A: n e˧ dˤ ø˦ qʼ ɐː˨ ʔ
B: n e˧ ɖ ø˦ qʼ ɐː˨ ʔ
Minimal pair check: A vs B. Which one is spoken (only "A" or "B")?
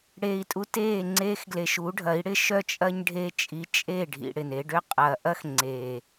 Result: B